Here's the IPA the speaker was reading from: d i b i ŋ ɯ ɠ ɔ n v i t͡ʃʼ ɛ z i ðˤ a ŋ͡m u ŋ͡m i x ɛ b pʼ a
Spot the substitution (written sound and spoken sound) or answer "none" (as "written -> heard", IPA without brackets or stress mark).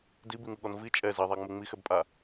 none